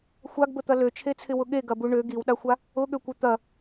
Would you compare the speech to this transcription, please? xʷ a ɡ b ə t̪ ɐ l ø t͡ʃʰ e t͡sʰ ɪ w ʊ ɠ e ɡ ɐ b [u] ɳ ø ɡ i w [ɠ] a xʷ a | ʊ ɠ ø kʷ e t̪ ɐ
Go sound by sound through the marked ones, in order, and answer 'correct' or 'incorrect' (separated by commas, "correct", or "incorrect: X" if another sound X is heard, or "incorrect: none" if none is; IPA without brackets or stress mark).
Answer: correct, incorrect: ɗ